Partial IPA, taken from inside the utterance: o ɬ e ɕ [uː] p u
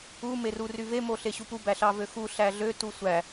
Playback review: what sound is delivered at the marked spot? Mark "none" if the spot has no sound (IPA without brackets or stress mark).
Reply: u